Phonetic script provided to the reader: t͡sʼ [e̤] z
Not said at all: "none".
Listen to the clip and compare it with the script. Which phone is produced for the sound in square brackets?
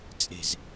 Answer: e̤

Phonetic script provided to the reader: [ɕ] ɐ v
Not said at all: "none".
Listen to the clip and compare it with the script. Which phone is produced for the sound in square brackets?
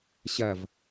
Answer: ɕ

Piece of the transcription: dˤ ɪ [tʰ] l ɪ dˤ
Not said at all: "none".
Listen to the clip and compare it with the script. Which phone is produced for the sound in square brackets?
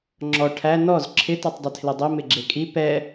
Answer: tʰ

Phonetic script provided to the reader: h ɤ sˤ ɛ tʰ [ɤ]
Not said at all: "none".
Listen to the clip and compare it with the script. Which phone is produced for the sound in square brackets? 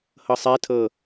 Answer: ɤ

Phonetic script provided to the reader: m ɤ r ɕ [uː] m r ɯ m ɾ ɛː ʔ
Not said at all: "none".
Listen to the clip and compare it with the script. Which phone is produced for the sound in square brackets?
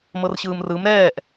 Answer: ɯː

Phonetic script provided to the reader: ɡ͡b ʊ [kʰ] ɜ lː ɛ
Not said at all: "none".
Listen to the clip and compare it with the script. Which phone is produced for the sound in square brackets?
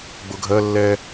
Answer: ɡʱ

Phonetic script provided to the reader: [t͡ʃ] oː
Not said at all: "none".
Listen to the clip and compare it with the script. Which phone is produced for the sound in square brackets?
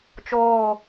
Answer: t͡ʃ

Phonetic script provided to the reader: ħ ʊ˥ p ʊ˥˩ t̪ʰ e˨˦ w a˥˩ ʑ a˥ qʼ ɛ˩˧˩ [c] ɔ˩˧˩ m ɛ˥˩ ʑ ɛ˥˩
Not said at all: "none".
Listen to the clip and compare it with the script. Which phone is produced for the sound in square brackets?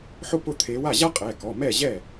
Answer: k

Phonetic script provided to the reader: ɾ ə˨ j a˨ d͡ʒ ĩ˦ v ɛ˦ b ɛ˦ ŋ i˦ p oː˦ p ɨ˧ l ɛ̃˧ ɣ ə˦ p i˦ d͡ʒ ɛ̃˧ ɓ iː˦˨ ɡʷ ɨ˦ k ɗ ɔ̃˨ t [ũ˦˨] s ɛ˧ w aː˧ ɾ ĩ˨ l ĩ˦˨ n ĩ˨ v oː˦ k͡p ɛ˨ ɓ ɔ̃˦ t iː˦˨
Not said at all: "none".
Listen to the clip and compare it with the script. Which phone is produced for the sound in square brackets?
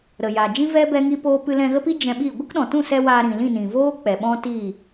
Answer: ũ˦˨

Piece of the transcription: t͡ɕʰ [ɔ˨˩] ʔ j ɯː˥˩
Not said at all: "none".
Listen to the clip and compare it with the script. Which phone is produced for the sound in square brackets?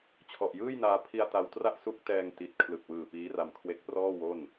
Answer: ɔ˨˩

